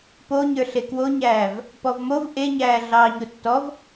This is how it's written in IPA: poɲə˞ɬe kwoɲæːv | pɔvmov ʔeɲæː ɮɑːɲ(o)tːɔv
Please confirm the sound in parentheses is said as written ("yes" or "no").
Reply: yes